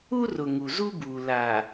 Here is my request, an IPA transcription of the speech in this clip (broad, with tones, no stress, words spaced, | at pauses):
u˦rʊ˨ ŋu˨zu˦buː˨ la˨